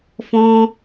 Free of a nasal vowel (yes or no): no